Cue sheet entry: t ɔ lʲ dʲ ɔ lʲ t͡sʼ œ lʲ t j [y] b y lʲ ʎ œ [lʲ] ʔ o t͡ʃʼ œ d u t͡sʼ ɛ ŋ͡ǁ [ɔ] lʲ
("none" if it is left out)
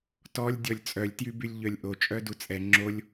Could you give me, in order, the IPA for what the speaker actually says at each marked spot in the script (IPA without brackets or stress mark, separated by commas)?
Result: y, lʲ, o